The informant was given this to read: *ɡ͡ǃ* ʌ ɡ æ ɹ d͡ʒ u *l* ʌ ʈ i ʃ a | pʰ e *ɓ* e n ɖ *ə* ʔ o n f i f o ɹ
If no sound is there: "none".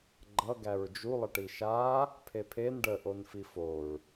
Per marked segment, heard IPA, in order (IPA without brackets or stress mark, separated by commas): ɡ͡ǃ, lˠ, pʰ, ə